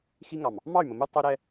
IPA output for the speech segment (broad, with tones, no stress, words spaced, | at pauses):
xi˦ŋɑ˨m | mɑ˦˨y̯mə˨mu˦ tˤu˦ ɾɛ˦